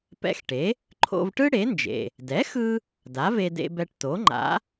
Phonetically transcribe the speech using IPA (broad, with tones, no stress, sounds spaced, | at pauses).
p ɛ̰˧ x ʈ e˩˥ | ǃʰ o̰˧ v ʈ ɯ˥ ɽ e˩˥ n d͡ʒ ḛ˩ | d ɛ˩˥ x ɯ˧ | d a˩˥ v e˧ d ḛ˧ b ɛ˧ ʈ t o˩˥ ŋ͡ǃ a̰˩˥